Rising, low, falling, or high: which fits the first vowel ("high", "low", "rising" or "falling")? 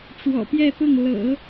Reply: low